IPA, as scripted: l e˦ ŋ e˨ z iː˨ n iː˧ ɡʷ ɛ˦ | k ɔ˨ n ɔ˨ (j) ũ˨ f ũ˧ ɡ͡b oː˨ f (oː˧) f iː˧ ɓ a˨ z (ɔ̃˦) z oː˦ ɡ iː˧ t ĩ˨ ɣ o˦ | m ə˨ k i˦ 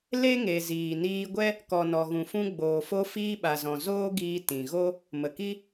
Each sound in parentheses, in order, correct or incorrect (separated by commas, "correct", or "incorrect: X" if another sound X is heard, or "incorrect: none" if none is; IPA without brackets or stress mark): incorrect: ɣ, incorrect: o˧, incorrect: ɔ̃˨